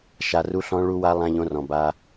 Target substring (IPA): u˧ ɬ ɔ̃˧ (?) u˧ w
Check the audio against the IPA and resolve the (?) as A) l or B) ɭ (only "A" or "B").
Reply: B